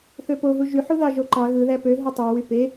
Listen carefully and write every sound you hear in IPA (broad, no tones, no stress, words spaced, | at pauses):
θøpoɦu ʒyħuðɑ ʒoǃɑ ɣɯðæ pø ɦutˤywy pe